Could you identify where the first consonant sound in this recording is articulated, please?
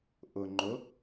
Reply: glottal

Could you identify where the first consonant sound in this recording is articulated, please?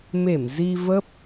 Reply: labial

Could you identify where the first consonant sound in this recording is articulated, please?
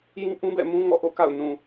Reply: palatal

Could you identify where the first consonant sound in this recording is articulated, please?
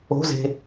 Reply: alveolar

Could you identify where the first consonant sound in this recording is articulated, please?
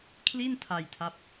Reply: velar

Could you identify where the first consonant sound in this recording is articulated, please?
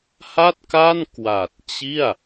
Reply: glottal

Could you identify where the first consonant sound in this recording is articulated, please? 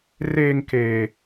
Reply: alveolar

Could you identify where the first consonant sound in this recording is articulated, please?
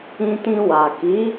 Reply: alveolar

